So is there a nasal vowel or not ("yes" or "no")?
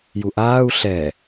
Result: no